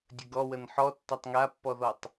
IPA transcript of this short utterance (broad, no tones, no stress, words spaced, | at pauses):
dʲəɡɔ wənħɔ tːatˤŋapːɔðɔtˤ